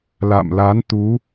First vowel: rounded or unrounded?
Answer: unrounded